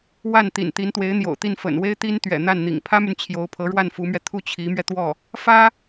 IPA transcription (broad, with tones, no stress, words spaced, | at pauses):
wa˥˩nt̪ḭ˨˩n t̪i˧˥nt̪we˧˥ɪ̯n̪jo̰˨˩ʊ̯t̪i˥˩n fə̰˨˩nwe˥ɪ̯t̪i˥n t̪ɥɛ̰˨˩ n̪a˥˩nn̪ḭ˨˩ŋ pʰä˥my˨n t͡ɕʰjo˧˥ʊ̯pʰɤ˧˥ɻwa˥˩n fu˧˥mɥɛ˧ t̪ʰu˥˩ t͡ɕʰi˧˥mɥɛ˧t̪wɔ˥˩ | fä˥